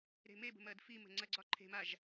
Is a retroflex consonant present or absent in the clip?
absent